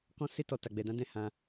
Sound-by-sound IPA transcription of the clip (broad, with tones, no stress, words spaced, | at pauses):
kɔ̃˦se˦ tɔ˧ ta˧ɡ͡bɛ˧dã˦ dɛ̃˦˨hã˧